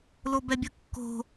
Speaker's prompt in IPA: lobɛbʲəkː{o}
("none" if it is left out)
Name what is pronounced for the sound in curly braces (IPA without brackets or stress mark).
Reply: o̤